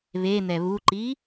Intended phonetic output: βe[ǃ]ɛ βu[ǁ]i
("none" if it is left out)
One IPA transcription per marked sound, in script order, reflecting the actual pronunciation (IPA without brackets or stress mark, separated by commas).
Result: n̪, ǃ